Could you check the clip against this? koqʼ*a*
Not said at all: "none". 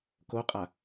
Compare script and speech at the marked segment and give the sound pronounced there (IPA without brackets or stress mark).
a